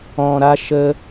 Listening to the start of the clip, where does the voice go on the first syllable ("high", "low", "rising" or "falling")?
low